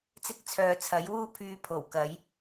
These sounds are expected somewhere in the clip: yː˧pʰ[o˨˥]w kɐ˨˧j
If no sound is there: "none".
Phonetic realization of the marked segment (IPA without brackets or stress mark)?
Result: o˨˩